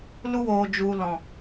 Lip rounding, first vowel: rounded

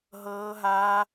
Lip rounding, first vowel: unrounded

